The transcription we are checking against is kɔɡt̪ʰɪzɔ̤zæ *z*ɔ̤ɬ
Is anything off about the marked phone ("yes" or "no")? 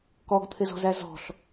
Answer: no